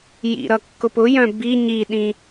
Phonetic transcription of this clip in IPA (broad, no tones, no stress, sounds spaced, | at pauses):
j ḭ ɾ ʌ kː ʊ p ʊ j œ̃ b i ɲ i ɗ ĩ